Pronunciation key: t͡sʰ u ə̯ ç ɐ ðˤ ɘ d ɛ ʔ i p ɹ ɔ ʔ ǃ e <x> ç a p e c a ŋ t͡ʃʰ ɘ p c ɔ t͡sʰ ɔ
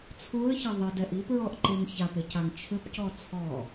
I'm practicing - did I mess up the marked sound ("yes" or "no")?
yes